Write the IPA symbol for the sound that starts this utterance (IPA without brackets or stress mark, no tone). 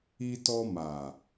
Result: i